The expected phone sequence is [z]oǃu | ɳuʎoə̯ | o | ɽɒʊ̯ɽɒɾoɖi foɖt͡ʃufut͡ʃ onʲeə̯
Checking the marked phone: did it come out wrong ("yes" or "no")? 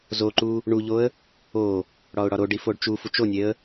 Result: no